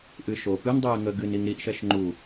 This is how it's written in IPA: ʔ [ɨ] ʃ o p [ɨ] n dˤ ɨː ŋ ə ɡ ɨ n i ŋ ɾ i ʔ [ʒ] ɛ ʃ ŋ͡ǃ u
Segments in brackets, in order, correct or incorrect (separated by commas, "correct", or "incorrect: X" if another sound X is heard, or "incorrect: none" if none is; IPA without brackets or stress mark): correct, correct, incorrect: ʃ